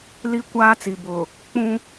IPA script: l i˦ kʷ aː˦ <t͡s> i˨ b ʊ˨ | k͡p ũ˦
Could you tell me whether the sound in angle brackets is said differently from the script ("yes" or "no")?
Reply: no